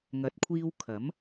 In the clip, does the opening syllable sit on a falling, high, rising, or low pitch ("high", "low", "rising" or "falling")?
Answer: rising